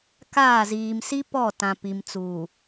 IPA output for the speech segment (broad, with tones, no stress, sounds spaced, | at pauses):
k aː˦˨ z iː˨ m s i˦ p ɔ˦˨ t ã˨ p i˨ m t͡s uː˨